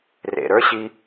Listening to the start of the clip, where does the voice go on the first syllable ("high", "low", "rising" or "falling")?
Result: low